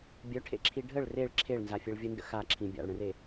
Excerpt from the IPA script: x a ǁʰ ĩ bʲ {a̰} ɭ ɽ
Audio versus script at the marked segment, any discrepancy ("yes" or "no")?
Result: no